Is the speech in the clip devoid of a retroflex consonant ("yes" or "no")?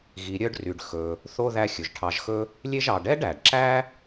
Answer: no